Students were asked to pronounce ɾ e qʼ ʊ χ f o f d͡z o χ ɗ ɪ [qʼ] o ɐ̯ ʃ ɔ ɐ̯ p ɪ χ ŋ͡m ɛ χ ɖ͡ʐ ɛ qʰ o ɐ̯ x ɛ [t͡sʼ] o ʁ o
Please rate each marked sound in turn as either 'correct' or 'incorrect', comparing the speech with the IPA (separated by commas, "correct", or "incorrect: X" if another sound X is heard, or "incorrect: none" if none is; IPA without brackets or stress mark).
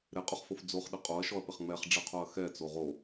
correct, incorrect: t͡s